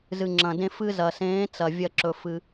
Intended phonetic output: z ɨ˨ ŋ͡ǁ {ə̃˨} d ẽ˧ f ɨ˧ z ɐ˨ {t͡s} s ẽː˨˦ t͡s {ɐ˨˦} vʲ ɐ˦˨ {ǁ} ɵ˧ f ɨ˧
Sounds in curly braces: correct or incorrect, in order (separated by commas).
incorrect, incorrect, incorrect, correct